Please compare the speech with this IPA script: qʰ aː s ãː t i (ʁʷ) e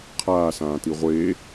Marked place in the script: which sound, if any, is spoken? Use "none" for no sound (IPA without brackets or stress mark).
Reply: ʁʷ